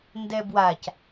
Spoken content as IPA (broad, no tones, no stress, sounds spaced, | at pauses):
n d ɛ b w a c